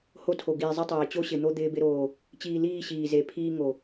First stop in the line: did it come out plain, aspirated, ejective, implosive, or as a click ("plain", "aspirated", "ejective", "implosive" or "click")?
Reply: aspirated